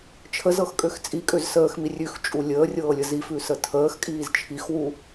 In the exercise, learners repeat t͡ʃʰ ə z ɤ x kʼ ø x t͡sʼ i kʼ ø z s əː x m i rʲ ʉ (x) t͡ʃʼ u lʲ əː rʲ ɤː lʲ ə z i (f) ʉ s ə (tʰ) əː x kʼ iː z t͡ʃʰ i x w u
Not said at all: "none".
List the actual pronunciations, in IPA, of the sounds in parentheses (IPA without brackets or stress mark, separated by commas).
x, f, tʰ